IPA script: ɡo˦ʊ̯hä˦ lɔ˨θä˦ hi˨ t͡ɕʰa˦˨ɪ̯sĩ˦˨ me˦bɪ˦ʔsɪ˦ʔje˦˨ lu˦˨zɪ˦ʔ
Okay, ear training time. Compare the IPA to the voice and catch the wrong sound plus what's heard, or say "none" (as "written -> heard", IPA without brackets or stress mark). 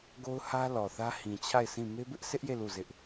i˨ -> ĩ˨